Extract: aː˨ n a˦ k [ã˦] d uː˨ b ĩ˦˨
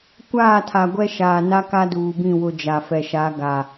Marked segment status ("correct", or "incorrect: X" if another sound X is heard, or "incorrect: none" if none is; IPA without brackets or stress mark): incorrect: a˦